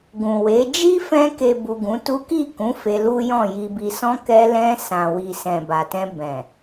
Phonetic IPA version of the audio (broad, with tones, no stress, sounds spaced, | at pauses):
ɡ ũ˨ w e˨˦ d͡ʒ i˦ f ɛ̃˧ k e˨ b u˨ ɡ ũ˨˦ t u˦ k i˦˨ k ũ˨˦ f e˧ l u˦ j ɔ̃˦˨ j i˨ b i˨ s ɔ̃˧ k ɛ˧ l ɛ̃˧ s ã˨ w i˨ s ɛ̃˨ b a˨ t ɛ̃˧ b ɛ̃˨